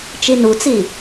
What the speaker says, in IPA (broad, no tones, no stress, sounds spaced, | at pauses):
t͡ʃ i n u t͡s i